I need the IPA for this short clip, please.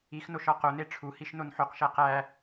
i x n o ʃ ɒ q o n e ʈ͡ʂʰ u h i ʃ n o n ħ o q ʃ æ q æ

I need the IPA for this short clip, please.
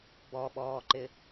b ɔ ɓ ɔː ǃ ɪ

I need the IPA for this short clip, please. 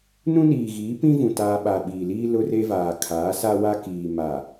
n ũ˦ n iː˨ ɣ iː˨˦ p ĩ˦ v ũ˨ t aː˦ ɓ a˨ ɓ iː˨ l iː˦ l ʊ˦ r e˦ v aː˨ kʰ aː˨˦ s a˦ w a˦ k iː˨ m a˨

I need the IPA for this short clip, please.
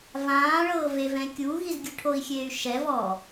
v ãː ɭ ɤː v e v ɛ̃ kʲ u ɣ i z ɡʲ ɯ ʈʰ o i̯ xʲ eː y̯ ʃ ɛ v ɔ

